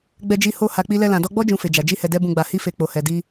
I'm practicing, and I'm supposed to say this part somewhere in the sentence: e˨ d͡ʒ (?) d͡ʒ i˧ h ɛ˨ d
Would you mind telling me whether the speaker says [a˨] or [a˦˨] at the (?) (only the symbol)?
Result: a˨